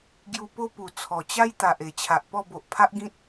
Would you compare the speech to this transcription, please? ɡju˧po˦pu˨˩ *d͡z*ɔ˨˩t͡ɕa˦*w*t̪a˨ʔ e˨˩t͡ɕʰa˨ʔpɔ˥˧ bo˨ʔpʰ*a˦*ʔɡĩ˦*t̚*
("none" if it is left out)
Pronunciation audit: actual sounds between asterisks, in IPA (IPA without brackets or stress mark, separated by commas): t͡sʰ, j, a˦, t̚